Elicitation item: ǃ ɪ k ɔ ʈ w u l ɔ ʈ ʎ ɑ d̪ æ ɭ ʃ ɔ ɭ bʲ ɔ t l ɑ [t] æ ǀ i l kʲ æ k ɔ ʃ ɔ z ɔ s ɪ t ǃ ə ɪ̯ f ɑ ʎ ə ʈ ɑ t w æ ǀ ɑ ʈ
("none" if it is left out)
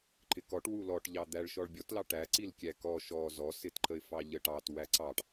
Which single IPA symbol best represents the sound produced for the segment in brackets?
ʈ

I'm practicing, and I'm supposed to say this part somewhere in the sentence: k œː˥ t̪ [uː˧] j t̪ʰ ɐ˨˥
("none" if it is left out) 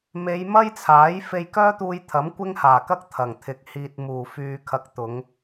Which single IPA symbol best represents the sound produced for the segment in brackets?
uː˧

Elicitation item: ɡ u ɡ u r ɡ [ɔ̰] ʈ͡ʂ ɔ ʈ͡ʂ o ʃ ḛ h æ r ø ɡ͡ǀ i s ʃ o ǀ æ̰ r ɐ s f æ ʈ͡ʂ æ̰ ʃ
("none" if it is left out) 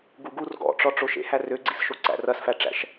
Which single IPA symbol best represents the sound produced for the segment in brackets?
ɔ̰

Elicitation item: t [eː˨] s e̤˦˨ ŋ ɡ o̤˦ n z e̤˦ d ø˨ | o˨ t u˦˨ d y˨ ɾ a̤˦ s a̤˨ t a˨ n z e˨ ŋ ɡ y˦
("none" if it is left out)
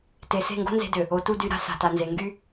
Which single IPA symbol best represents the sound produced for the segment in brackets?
e˨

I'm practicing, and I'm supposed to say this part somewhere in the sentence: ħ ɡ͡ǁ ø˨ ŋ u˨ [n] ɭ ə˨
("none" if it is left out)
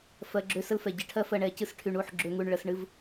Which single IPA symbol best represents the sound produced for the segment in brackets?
ɳ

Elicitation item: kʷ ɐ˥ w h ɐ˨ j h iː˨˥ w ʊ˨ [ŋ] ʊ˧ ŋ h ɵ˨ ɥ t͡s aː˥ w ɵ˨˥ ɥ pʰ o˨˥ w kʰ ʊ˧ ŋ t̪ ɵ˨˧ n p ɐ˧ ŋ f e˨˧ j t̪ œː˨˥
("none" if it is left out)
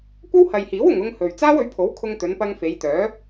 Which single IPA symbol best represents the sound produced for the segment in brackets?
ŋ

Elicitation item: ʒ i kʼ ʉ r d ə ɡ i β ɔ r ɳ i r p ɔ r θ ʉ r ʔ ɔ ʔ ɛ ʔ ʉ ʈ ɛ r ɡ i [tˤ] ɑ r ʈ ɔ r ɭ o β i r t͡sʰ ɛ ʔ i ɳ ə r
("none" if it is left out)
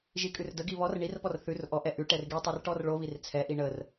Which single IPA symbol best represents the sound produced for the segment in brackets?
tˤ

